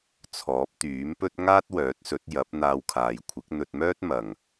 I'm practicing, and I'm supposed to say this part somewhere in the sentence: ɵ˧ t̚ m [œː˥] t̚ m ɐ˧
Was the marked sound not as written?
no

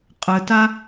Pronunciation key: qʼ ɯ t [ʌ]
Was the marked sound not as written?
yes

